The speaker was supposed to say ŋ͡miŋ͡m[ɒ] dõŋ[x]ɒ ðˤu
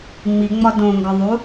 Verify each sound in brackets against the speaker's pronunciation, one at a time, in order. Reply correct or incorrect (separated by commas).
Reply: correct, incorrect